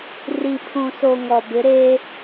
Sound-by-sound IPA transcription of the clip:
ri˨pʰũ˨so˨ ŋɔ˨bɪ˨˦ ɾeː˦

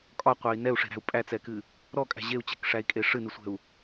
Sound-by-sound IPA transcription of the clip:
kʼɒqʷæi̯ nɛu̯ʂe̤ɾæ̤u̯ pʼæt͡sɛkɨ | ɾɔkʼæ̤ ʑeu̯t͡ɕɛ̤kʂæi̯kʼe ʂɨnɨsʷɛ̤u̯

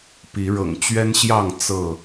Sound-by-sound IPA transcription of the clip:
pi˨˦ ɻɤ̰˨˩ŋt͡ɕɥɛ˦nɕjɑ˥˨ŋ t͡sɤ˥˨

